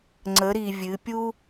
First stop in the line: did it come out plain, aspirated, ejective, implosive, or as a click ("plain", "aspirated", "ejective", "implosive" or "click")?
click